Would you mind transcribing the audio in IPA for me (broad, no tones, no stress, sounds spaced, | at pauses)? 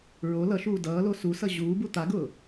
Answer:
ɹ o l ʌ ʃ uː d ʌː l o s u s ʌ ʑ uː b u t̪ a ɡ ʊː